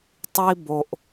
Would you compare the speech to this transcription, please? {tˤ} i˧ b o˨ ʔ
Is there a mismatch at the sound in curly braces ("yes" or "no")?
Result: no